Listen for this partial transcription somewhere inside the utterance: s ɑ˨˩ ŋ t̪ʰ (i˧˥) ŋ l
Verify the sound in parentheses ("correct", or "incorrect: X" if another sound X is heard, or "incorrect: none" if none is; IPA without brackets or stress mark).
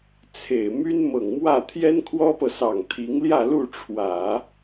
correct